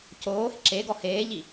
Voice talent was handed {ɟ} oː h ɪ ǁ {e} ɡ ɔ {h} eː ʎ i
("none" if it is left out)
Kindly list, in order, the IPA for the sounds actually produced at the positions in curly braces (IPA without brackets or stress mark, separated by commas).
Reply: c, e, h